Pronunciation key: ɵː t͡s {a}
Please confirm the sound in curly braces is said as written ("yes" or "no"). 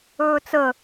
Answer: no